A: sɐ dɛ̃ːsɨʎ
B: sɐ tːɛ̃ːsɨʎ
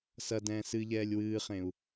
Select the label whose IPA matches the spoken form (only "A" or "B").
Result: A